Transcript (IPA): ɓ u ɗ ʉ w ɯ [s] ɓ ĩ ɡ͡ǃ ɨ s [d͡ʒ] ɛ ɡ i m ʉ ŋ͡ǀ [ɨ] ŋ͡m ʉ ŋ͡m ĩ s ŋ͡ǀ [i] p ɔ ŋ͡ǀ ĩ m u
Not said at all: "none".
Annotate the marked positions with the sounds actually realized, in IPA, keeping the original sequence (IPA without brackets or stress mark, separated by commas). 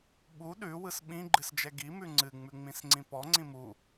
s, d͡ʒ, ɨ, ĩ